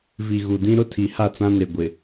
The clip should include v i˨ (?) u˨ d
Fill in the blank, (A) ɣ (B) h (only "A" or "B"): A